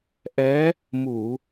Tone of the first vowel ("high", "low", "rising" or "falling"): rising